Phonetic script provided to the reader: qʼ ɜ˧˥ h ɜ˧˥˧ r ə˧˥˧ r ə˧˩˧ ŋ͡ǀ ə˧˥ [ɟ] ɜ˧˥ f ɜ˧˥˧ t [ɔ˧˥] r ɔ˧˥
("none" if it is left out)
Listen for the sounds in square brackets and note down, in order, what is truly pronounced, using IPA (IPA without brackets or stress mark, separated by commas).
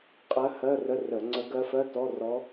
ɡ, ɔ˧˥˧